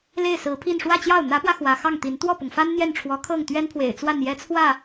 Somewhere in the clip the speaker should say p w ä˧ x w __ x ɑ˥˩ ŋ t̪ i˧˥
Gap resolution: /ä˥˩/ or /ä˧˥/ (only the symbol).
ä˧˥